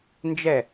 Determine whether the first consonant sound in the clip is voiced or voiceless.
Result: voiced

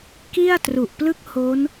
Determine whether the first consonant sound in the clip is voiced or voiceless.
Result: voiceless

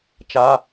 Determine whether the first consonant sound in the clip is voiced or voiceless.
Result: voiceless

